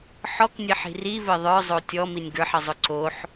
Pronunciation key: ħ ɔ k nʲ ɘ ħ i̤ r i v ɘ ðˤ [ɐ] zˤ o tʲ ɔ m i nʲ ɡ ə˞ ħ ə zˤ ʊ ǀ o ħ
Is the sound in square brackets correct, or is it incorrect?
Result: incorrect